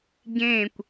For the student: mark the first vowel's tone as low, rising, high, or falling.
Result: falling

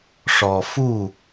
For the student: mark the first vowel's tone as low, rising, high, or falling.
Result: low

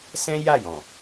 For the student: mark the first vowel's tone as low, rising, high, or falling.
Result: high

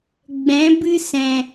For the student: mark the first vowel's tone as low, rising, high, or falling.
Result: rising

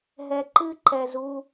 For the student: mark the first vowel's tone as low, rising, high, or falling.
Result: low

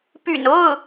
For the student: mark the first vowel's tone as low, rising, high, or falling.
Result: low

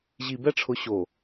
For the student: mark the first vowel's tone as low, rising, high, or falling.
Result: low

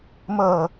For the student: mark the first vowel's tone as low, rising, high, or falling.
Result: low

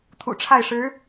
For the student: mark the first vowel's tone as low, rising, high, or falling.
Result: low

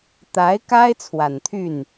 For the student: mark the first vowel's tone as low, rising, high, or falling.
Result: rising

